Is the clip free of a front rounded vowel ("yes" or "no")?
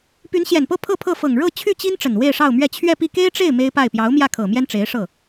no